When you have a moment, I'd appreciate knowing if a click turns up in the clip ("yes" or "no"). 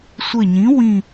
no